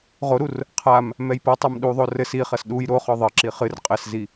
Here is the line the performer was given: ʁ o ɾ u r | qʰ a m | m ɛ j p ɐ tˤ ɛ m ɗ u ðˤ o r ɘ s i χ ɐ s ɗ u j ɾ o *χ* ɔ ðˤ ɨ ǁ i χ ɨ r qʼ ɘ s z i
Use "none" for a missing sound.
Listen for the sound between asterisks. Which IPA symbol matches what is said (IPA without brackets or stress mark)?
χ